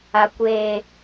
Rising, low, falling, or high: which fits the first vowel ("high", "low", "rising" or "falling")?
low